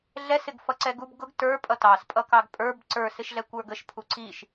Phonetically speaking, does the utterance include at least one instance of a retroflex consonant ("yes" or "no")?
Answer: no